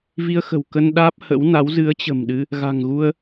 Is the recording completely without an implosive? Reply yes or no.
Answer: no